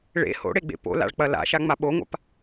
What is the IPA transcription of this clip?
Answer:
ɭ ḛ h o̰ ɽ e ɡ͡b ḛ p o̰ l a̰ ɭ k͡p ɐ l a̰ ʃ a ŋ͡m a ɓ o ŋʷ a̰ p

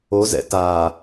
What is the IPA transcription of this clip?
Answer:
o z ɛ̰ t a

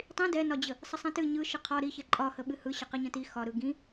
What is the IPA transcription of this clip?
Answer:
tˤ ĩ d ɛ n ɒ d͡ʑ ə | sˤ ə sˤ ɛ̃ t ɨ ɲ ɯ ʃ ɨ qʰ ɒ ɾ i ç ɛ ǃʼ ɒ h ə ɓ ɨ h ɯ ɕ ə q i ɲ ə̃ t i x ɒ ɾ ɯ ɡ ĩ

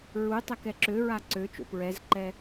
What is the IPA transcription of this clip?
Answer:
ɹ u tˤ ɛ k ɛ ǁ ø ɹ a ǀ ø t͡ʃ o̰ p ɹ ɛ z ǃ ɛ

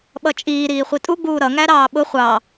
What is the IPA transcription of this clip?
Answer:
ɓ ʌ t͡ʃʼ iː ɾ iː χʷ i tʼ u ɡ͡b uː ɾ ʌ ŋ æ ɾ ɑː ɓ ʊ χʷ ɑ

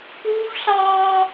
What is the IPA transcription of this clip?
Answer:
k uː˦ v ɬ ɑː˦

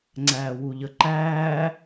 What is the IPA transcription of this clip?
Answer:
ŋ͡ǀ æː w u ʎ ə ǃ æː

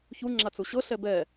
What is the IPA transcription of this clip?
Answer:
ç u ŋ͡ǁ a t͡s u ɕ ɤ ɬ ɛ b ɛ

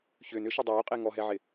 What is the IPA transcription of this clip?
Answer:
ç ʏː n ʏ ʃ ɛ dˤ oː qʼ e ŋ ɔ ɦ ɛ ʕ ɪ

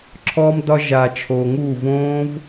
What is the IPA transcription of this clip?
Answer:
ǁʰ ɔː˧ m d ɒ˧ ʒ a˨ t͡ʃʰ oː˨ ŋ uː˦˨ v õː˦ v

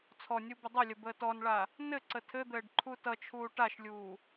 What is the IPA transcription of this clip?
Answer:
t͡sʰ ɔ nʲ u b ə dˤ ʏ lʲ ə b əː t ɔ n ɭ a | n ɘ ǀ ə tʰ ɘ d̪ ɘː ɖ ǃʰ u t ʌ t͡ʃʰ uː ʈ a ʃ lʲ uː

